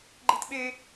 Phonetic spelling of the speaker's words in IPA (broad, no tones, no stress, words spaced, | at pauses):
ɡ͡ǃitɓe